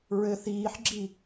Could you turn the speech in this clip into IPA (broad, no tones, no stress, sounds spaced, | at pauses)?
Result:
ɹ ɘ θ iː ħ ɡ͡ǁ i